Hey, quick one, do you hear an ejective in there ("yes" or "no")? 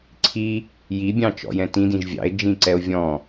no